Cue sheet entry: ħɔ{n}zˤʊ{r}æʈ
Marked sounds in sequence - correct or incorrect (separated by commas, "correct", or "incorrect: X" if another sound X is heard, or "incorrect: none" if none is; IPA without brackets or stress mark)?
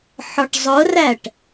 incorrect: ʈ, correct